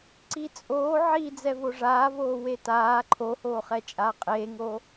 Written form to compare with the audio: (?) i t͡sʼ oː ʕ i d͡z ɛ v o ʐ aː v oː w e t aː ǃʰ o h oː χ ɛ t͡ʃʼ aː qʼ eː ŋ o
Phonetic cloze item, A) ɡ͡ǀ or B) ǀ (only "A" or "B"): B